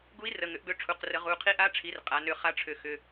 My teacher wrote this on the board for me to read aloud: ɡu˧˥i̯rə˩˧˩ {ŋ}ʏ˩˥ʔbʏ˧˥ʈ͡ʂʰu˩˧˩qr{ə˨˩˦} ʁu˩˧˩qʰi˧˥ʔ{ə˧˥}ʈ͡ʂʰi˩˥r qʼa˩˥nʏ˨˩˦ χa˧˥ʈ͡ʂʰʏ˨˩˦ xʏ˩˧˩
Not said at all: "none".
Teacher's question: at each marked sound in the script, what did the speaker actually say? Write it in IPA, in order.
ŋ, ə˨˩˦, a˧˥

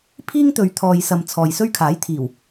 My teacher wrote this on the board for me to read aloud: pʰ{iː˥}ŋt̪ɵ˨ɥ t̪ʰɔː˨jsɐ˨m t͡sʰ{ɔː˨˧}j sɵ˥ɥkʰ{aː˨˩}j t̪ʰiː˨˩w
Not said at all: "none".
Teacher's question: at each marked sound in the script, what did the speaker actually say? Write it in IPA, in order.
iː˥, ɔː˨, aː˨˥

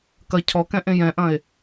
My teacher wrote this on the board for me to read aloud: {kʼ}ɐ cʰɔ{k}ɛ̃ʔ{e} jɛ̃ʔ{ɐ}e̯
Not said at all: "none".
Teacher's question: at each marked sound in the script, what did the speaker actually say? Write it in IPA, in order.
k, k, ẽ, ɐ̃

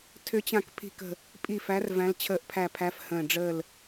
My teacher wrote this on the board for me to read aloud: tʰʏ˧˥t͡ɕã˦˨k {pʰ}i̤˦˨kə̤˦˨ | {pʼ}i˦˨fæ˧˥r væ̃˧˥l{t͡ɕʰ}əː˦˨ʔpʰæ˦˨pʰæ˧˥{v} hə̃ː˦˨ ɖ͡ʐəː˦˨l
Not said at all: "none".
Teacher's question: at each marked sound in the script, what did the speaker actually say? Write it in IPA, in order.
pʰ, pʼ, t͡ɕʰ, f

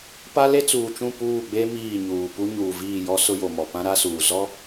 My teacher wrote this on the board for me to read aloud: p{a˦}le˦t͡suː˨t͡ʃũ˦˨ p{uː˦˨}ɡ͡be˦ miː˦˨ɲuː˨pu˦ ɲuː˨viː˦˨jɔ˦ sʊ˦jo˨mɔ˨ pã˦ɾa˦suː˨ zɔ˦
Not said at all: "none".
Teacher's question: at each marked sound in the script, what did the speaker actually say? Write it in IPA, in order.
a˦, uː˦˨

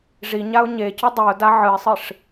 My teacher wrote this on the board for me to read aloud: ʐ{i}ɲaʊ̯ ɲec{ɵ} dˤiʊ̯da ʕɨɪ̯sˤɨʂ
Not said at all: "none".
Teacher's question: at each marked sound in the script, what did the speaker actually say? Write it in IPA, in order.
i, ɵ

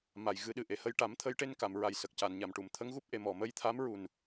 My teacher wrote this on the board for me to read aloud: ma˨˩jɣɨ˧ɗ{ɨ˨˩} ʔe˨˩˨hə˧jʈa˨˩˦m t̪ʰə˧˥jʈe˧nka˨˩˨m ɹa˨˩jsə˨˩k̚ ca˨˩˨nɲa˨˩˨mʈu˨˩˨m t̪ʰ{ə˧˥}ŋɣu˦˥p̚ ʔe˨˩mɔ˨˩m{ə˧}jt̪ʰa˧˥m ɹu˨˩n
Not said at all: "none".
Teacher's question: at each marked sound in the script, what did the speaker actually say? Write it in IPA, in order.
ɨ˨˩, ə˧˥, ə˧

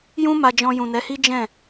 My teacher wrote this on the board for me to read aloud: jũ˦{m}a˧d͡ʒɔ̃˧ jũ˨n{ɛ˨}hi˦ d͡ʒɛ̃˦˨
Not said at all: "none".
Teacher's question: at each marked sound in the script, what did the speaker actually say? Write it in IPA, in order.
m, ɛ˨˦

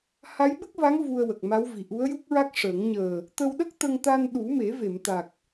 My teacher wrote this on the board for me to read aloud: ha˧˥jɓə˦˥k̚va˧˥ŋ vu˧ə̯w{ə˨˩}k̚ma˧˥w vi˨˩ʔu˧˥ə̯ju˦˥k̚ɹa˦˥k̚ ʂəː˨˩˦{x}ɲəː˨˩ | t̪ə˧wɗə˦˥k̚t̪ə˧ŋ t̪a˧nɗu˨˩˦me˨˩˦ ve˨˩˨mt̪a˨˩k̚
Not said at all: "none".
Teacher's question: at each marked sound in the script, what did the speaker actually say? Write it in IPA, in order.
ə˨˩, ŋ

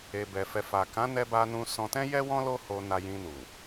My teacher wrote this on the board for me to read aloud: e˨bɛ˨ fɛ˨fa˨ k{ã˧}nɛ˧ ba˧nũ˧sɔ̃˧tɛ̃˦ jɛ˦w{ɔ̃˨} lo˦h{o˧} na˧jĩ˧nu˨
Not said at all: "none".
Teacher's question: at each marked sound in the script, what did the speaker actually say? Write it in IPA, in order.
ã˨˦, ɔ̃˦, o˧

